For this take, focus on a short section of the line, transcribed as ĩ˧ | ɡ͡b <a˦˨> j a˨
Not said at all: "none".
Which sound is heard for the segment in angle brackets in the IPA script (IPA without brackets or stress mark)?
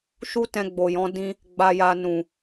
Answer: a˨